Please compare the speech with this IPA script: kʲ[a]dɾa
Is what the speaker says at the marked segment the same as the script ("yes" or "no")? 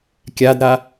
yes